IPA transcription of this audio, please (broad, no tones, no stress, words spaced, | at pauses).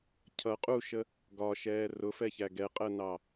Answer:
cʰʌ qʼuʃə | ɡɒʃɛː rʊfɛçæ ɡɛqʼɜnɑ